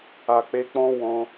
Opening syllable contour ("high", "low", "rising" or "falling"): low